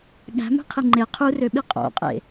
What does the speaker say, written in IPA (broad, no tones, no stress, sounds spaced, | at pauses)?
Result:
ɠ æ̤ m æ̤ qʰ i ŋ͡ǃ e qʰ u r ø ɓ i qʼ o̰ qʼ ḛ